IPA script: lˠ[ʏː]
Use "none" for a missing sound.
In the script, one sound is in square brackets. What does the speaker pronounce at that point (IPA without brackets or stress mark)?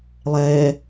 ɛː